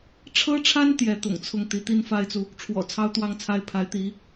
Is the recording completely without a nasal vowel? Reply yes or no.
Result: yes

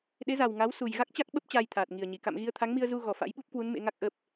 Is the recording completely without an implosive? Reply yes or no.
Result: no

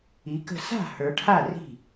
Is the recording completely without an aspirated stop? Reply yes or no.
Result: no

